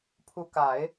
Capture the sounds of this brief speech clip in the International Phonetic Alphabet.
pʰ u˧˥ k a˨˩˦ ɪ̯

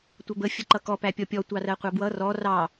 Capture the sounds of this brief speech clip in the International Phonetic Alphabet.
tʷ ʌ b ə fʲ ə ǃ ʌ k ɔ p æ pʲ ɔ pʲ ɔ tʷ ɑ r ɜ qʷ ɑ b w ʌ r ɔ r ɑ

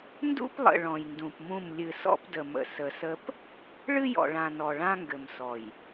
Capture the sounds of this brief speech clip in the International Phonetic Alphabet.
n d ṵ˦ p lˠ ə̰˨ ɭ ɔ̃˨ j n d ũ˨ p m ũ˦˨ m lʲ ɨ˨ s ɔ̰˦ p d ə˨ m ə̰˨ s ə˨ s ə˦ p | ɭ ɨ˦ j ɔ̰˨ ɭ ã˨ n ɔ˨ ɭ ã˦ ŋ ɡ ɘ˨ m s ɔ˨ j

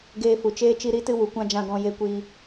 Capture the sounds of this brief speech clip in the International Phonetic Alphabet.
ɡ eː˧ f u˨ t͡ʃ eː˦ t͡ʃ i˧ ɾ i˨˦ t ɨ˧ w u˨ kʷ ã˦ d͡ʒ ã˧ ɡ ɔ̃˧ j e˧ kʷ i˧

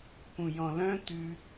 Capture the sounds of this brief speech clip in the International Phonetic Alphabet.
p ũ j ɔ̃ l œ̃ t̪ ʉ

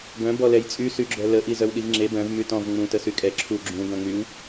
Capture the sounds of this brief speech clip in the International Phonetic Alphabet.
ɡ œ̃ b ɔ l ɛ j t͡sʼ y s y ɡ͡ǁ œ l ə ʔ i z œ w ɗ i v ŋ͡ǁ e b œ̃ v m y t ɔ̃ v ŋ͡m ũ t ə s y kʼ ɛ ǁʰ u ɡ͡ǁ ũ ɡ œ̃ ŋ͡m y w

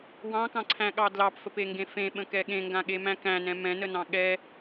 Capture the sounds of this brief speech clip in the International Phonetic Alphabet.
w ɑ̃ k ɑ̃ ǀʰ æ̃ ɠ ɑ d l ɑ p f ə p e ŋ ɡ ẽ f ẽ ɓ ə̃ k ɛ ɠ ẽ ŋ ɡ ã ɠ e m æ̃ k æ̃ n ɛ̃ m ɛ̃ n ə n ɑ̃ ɠ ɛ

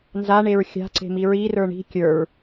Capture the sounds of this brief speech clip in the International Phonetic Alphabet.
n z a ɳ e ɹ xʲ a̤ ǀ e̤ m i ɹ i r ə˞ ɳ i̤ kʲ ə˞ ɹ

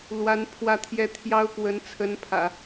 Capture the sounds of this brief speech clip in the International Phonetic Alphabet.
l w a˧˥ n pʰ w ä˥˧ t̪ʰ j ɛ˥˩ t̪ʰ j ɑ˥ ʊ̯ k w ə˧˥ n t͡sʰ ə˧˥ n pʰ ä̰˨˩˦

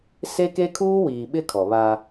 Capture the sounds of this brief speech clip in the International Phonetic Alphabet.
s e˦ k e˦ kʰ uː˦ w iː˨ ɓ ɪ˦ kʰ ɔ˨ β aː˦

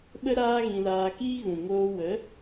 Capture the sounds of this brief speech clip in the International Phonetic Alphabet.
ɓ ə˦ ɾ aː˦ ɣ ĩ˧ l aː˧ k iː˦ ɣ ũ˨ ŋ oː˧ w ə˨˦

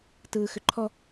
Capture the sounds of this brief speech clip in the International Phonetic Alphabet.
t ɯː x ʏ ǃʰ ɔ

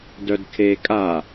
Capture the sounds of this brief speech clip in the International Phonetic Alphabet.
d œ d kʰ e kʼ a

